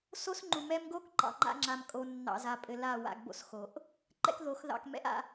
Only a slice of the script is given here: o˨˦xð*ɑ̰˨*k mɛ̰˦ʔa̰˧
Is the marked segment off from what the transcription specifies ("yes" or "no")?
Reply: yes